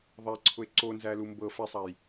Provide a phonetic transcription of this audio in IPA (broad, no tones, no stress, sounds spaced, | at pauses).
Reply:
ðˤ æ ǀʰ ʊ e̯ ǀ o n z æ l u m b ɤ f æ sˤ a j